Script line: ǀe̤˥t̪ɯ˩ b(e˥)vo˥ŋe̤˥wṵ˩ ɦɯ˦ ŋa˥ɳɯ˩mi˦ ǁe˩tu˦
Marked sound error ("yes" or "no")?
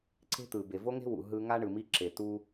yes